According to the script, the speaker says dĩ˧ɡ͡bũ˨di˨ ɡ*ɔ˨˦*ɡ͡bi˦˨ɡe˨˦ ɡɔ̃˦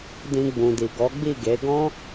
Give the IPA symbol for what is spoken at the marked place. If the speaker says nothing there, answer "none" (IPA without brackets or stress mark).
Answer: ɔ˨˦